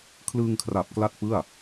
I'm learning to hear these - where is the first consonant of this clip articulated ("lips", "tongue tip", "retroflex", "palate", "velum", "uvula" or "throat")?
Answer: velum